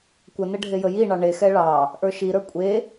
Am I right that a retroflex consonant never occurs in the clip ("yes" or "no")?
no